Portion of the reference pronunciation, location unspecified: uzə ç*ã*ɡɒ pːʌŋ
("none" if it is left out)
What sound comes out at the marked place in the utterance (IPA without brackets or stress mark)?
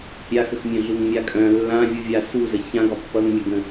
ã